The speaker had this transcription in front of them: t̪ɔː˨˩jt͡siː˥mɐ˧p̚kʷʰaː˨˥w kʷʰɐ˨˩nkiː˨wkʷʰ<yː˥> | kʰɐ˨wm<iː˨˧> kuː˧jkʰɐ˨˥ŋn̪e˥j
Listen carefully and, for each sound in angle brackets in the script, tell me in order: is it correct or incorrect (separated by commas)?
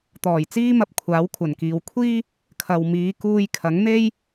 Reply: incorrect, correct